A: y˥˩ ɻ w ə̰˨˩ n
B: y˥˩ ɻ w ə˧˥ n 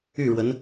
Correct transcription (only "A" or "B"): B